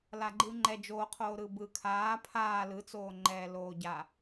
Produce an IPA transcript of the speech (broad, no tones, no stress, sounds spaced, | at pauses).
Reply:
l a ɡ͡ǃ ɯː ŋ͡ǃ ɛ d͡ʒ oː qʰ oː ɾ ɯ b ɯ kʰ aː pʰ aː l ɯ t͡s oː ŋ͡ǃ ɛː l oː ɟ a